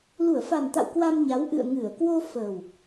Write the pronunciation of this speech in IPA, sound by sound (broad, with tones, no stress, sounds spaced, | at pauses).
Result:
l u˧˩ ə̯ f a˨˩ n t̪ a̰˧˨ w k w a˧ m ɲ a˨˦ w ʔ ɨ̰˧˨ ə̯ ŋ ɨ˧˩ ə̯ k w o˧ f əː˨˩ w